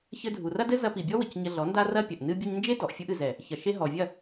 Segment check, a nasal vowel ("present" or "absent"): absent